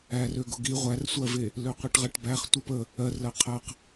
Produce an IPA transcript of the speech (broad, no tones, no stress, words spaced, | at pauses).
ærøɡʊ ɡi ʁʷærsʷɜve | løqʷiʈʁɜʈbæχ tʷəp ə | ɜrlɜ qʰɜq